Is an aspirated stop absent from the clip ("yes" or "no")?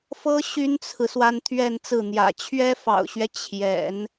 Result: no